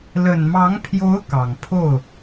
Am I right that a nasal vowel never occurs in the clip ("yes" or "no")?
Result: yes